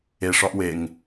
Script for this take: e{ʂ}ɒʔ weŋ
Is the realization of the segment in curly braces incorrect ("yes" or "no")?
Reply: no